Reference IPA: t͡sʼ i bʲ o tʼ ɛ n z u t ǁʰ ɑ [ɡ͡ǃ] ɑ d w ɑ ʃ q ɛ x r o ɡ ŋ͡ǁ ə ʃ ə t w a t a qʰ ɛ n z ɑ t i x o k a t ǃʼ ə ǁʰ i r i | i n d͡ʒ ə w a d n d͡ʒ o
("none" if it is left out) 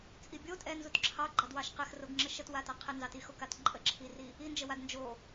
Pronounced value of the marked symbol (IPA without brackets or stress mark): ɡ͡ǃ